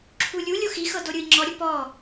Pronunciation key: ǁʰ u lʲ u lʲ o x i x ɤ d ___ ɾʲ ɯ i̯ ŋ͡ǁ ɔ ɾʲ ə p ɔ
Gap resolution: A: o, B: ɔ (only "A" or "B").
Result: A